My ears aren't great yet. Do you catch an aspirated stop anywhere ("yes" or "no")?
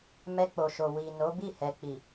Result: no